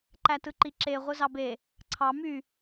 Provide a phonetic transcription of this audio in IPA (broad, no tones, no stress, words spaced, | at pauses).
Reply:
ǃætɯǃiǁe ʁʷɯzɑbe | ǀʰɑ my